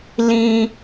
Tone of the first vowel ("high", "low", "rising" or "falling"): high